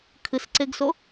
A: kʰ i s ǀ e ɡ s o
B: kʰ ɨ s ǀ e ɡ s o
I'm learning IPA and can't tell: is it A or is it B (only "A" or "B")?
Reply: B